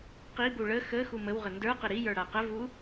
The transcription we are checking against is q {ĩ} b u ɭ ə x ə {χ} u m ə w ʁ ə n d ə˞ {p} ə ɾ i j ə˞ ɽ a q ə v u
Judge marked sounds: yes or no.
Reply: no, no, no

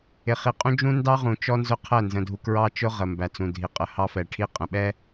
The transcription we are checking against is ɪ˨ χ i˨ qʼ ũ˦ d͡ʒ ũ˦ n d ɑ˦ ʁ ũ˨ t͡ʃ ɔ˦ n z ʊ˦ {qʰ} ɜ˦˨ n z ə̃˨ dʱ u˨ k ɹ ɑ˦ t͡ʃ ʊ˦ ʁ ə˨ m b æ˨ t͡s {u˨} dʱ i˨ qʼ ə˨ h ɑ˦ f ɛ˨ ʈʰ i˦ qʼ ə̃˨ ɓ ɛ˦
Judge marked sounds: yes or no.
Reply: yes, no

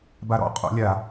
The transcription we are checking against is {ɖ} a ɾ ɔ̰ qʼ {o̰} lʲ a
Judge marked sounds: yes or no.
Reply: no, yes

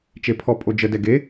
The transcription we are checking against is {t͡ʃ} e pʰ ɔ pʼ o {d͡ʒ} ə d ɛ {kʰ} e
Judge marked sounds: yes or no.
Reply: yes, yes, no

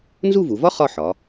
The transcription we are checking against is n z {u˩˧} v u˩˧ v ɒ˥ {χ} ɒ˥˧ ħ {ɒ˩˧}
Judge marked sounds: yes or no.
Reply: no, yes, yes

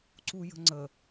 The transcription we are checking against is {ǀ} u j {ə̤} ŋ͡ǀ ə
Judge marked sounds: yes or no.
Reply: yes, yes

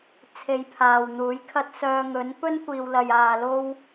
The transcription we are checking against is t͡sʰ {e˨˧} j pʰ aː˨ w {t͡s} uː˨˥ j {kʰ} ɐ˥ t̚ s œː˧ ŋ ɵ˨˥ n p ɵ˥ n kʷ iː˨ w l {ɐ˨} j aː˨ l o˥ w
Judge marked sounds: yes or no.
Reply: no, no, yes, yes

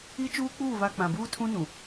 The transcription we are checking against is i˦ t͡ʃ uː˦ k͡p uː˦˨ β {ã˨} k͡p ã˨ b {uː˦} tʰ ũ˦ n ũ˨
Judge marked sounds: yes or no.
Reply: no, yes

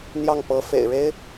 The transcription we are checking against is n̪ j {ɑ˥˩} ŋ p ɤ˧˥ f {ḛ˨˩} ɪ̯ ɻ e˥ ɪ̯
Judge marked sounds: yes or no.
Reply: yes, yes

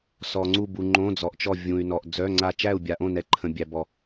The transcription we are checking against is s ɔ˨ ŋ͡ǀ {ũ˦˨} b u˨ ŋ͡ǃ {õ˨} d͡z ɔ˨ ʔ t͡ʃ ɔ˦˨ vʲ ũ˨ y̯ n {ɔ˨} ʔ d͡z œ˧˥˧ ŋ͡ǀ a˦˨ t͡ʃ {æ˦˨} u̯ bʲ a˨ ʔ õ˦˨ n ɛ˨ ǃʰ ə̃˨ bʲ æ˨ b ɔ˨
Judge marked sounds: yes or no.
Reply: no, no, yes, yes

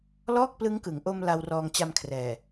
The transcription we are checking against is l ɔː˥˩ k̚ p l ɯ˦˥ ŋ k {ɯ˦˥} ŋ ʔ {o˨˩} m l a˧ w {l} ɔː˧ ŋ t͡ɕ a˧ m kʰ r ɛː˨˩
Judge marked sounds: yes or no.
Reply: no, no, no

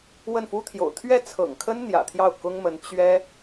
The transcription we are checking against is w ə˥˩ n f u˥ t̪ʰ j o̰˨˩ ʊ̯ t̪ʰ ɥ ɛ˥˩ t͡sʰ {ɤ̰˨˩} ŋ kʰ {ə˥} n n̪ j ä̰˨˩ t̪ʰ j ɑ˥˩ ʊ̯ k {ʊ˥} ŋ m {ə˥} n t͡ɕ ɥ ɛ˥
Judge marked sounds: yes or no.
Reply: yes, yes, yes, no

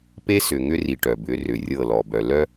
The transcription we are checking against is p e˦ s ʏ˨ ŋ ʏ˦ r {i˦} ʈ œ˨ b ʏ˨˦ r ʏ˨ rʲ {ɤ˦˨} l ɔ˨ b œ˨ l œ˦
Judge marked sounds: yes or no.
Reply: no, yes

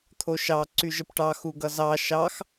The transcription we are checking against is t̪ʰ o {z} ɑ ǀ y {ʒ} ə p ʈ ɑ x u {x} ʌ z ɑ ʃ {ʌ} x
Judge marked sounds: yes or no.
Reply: no, yes, no, no

